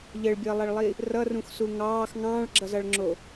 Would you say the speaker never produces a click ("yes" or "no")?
no